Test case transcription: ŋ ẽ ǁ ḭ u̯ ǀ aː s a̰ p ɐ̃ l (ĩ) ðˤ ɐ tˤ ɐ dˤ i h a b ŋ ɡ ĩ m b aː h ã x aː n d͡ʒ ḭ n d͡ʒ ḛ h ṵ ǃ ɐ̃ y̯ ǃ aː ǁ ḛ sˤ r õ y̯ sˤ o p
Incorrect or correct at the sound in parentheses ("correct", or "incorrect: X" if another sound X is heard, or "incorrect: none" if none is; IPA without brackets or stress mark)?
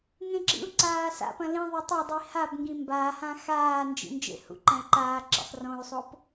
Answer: correct